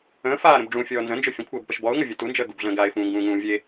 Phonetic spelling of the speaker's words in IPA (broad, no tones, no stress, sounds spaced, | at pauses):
ə̃ː f aː ɾ ə̃ b ɖ͡ʐ ũ fʲ ɔː n z ə̃ n d͡ʒ ɵ fʲ ə̃ kʷʰ əː b p ə ʃ b ɔ ʊ̯ ŋ ə vʲ ɵ t u n d͡ʒ əː ɡ u b ɮ ə̃ː ɡ a ɪ̯ f ũː ŋ ɡ ũː ŋ ũː vʲ e